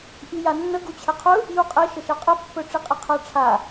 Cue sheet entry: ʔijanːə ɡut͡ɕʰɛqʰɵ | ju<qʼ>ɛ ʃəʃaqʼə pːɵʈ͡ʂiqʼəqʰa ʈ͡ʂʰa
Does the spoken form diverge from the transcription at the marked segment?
no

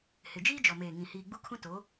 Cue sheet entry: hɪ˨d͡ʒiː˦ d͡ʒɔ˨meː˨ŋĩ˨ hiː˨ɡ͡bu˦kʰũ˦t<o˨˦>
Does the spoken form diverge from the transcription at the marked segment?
no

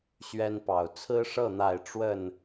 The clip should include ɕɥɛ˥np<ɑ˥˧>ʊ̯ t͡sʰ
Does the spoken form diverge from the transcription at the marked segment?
yes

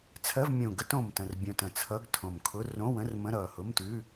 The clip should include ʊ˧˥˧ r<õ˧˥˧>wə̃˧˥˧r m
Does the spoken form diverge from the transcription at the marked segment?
no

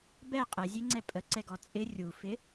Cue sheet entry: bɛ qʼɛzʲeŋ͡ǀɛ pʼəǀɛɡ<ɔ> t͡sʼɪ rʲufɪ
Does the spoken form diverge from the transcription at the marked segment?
no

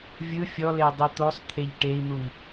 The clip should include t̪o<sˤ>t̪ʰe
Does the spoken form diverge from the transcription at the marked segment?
no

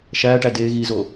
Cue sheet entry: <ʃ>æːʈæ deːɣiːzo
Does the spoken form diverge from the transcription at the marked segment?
no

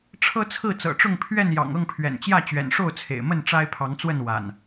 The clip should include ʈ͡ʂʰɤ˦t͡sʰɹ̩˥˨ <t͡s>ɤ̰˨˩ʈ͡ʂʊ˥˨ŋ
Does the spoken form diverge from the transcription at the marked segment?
no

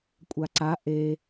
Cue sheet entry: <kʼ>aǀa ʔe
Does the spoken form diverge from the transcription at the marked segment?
yes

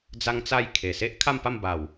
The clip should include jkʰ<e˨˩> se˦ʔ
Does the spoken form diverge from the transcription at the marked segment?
no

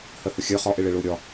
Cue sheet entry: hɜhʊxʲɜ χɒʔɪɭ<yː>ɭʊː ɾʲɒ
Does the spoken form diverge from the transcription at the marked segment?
yes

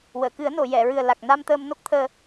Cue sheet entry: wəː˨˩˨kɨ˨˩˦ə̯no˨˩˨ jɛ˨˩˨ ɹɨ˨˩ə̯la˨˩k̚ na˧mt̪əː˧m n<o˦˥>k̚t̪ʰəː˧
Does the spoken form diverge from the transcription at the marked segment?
no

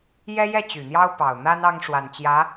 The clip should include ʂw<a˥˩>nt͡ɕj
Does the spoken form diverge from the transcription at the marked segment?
yes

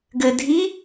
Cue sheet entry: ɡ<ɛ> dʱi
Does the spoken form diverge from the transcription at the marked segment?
yes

